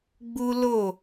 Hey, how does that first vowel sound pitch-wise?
high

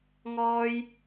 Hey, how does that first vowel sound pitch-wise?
high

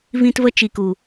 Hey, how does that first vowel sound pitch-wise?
high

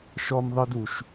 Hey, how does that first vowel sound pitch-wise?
high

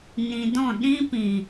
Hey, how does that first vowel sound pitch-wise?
low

